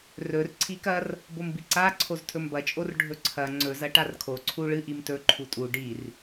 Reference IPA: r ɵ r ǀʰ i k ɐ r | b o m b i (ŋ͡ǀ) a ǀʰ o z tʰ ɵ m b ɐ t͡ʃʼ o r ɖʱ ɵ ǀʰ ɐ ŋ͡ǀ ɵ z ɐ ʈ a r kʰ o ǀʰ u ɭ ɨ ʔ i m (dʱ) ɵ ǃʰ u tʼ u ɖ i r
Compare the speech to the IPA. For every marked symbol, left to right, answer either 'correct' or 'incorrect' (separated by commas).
incorrect, incorrect